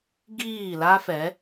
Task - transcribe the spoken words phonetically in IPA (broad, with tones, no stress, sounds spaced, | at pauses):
ɡ iː˦˨ l a˦ f ɛ˨˦